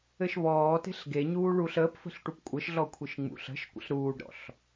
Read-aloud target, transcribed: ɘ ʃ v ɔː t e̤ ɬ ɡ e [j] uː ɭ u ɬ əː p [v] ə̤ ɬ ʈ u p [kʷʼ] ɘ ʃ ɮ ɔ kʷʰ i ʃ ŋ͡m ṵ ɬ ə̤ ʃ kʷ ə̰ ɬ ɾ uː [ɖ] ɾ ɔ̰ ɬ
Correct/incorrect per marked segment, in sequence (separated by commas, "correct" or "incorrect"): incorrect, incorrect, correct, correct